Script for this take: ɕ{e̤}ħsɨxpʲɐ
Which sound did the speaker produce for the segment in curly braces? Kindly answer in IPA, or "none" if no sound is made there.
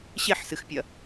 e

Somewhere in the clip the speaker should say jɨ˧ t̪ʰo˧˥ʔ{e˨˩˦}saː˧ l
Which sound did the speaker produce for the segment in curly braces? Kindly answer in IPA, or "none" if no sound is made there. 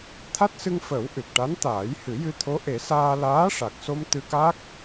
e˨˩˦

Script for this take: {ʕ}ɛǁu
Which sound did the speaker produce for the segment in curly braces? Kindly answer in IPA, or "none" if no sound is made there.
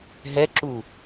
ɦ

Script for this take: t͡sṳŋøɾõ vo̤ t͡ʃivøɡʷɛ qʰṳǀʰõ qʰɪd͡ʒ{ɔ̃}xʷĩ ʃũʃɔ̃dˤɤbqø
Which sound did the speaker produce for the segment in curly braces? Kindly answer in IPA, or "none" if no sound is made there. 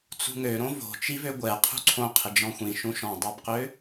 ɔ̃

